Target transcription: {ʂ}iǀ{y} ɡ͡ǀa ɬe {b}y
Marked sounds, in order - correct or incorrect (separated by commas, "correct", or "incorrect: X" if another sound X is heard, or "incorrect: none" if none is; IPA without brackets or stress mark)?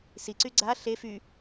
incorrect: s, correct, incorrect: f